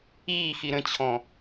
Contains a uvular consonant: no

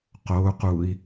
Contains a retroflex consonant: no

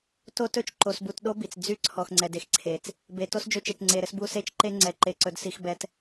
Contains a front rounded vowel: yes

